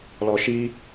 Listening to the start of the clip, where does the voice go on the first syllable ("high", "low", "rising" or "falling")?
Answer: low